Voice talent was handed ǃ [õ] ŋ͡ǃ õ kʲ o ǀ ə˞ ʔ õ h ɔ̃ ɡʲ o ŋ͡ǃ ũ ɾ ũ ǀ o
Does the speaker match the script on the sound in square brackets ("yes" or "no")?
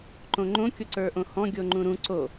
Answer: yes